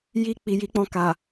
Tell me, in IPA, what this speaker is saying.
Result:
j i˧ k͡p i˨ j i˨˦ k͡p ɔ̃˧ k a˨

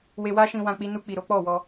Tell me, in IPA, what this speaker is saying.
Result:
w e˧ w a˦ ʃ ĩ˧ w ã˧ k͡p i˧ n u˧ k͡p i˨ ɾ o˨˦ k͡p ɔ˦˨ w ɔ˧

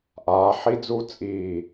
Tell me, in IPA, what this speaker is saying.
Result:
ʔ aː˩˧ ħ i˦˥ d͡z u˦˥ t͡sʼ iː˧˩

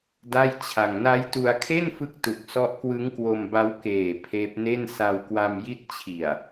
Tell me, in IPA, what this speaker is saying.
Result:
d a˥˩ j t͡ɕʰ a˧ ŋ n a˦˥ j t u˧ a̯ kʰ e˥˩ n f ɯ˦˥ k̚ t u˨˩ k̚ s ɔ˦˥ ʔ k w ɯ˦˥ ŋ k w o˧ m b a˦˥ w k eː˨˩ pʰ eː˦˥ p̚ n e˥˩ n s a˧ w k w a˧ m j i˦˥ t̚ t͡ɕʰ i˨˩ a̯

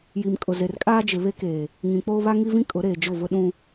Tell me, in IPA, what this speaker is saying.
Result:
j i˨ m kʼ ʊ˨ z e˨ r kʼ aː˦ d͡ʒ ɪ˨ β e˦ k eː˨ | ŋ ĩ˨ k͡p oː˦ β a˦ ŋ i˦ v ĩ˦ kʼ ʊ˨˦ ɾ eː˨ d͡ʒ ʊ˦˨ v ʊ˦ ɗ ũ˦

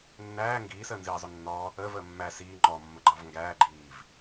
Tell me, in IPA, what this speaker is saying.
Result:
nː æː ŋ ɡ iː s əː n z iː zˤ ʊ nː ɔ | əː v əː mː æ s iː ŋ͡ǃ ɔ mː ə ɡ͡ǃ ɑ v ŋ ɡ æː ɡ͡ǃ iː v

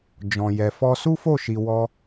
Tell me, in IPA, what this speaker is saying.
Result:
d͡ʒ ɔ̃˨ j ɛ˨ f ɔ˧ s u˦ f o˦˨ ʃ i˨ w ɔ˧

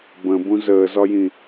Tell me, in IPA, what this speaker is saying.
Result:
b ə̃ b ũ z əː z ɒ j ĩ

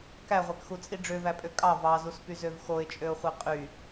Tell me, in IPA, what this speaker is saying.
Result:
k æ ʁʷ æ k x u t͡sʼ i ɖ͡ʐ ø v æ pʼ ø kʼ ɑ v ɑ z u s p y z ø v x o ɪ̯ t͡ʃʼ ø ʊ̯ χʷ i qʼ y

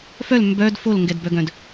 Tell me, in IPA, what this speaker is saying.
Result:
f œ l m b œ d f o l ŋ ɡ ɛ d b œ ɡ œ̃ d

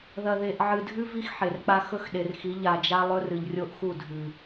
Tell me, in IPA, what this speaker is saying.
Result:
ð ɐ˨ ð e˨ ʔ ʕ ɨ˨ dʱ ʉ˦ v i˦ x ħ e˨ r k͡p a˦ x ɵ˦ x ɗ e˨ r x i˨˦ ʎ a˨ d͡ʒ a˦ lˠ ɵ˦ r ɨ˨ ʎ rʲ o˦ ʔ x u˦˨ dʱ ʉ˨

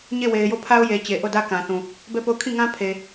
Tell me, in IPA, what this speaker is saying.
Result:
ɲ e˦˨ w e˨ ɪ̯ j o˦˨ pʰ a˦ ʊ̯ j e˨ t͡ɕ e˨ ʔ o˦˨ d ä˦ k ã˨ θ ũ˨ | b ɛ˦˨ p o˦˨ ʊ̯ kʰ ĩ˦˨ ŋ ã˦ pʰ e˨

